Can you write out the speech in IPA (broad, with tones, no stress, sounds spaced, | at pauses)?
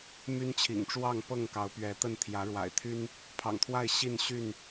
m y˦ n t͡ɕʰ ḭ˨˩ ŋ ʈ͡ʂ w ɑ˥˨ ŋ p ɤ˥˨ ŋ k ɑ˨˦ ʊ̯ p ɥ ɛ˨˦ t̪ ə˥˨ n t̪ʰ j ä˨˦ ɻ w a̰˨˩ ɪ̯ t̪ʰ y˦ n | pʰ ɑ̰˨˩ ŋ t̪ʰ w a˥˨ ɪ̯ ɕ i˥˨ n ɕ y˥˨ n